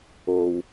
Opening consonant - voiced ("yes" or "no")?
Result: yes